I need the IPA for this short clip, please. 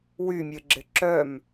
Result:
wymʲɘ ɡ͡ǁɪǁœm

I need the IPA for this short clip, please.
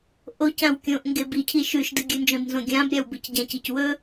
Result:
ʔocãw kʲõʔ ŋɡebicʰi ʃʉʃdɨ ɡʲɨnd͡ʒõd nzõɡʲãbɾʲaw bɨcɟãcic wɵ

